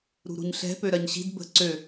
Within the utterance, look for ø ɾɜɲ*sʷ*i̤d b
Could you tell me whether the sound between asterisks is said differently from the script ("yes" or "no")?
yes